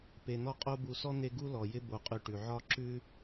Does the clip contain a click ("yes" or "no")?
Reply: yes